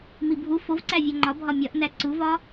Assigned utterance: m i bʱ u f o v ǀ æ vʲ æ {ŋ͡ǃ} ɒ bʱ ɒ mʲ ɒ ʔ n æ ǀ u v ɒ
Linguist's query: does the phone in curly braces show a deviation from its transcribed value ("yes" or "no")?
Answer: no